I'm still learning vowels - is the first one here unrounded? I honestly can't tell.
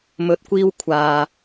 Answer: no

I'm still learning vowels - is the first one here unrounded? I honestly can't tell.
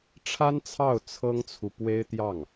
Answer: yes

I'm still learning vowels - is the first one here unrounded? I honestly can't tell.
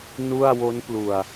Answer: no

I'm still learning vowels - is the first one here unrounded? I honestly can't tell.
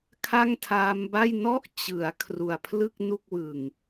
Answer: yes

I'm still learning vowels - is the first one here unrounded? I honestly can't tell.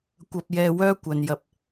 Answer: yes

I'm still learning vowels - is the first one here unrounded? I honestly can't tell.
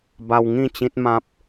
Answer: yes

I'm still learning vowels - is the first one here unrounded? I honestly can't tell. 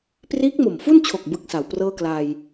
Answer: yes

